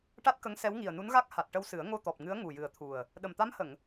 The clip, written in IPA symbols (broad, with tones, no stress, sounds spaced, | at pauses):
ʈ a˦˥ t̚ k ə˧˥ ŋ s ɛ˧˥ w ŋ i˨˩ ə̯ n u˧˥ n ɣ a˦˥ k̚ h a˨˩ t̚ ʈ ə˧ w s ɨ˨˩˦ ə̯ ŋ o˧ t̪ ɔ˨˩ p̚ ŋ ɨ˧˥ ə̯ ŋ u˨˩ j ɨ˨˩ ə̯ t̪ʰ u˨˩ ə̯ | ɗ ə˨˩ m t̪ a˧˥ m h ə˨˩˨ ŋ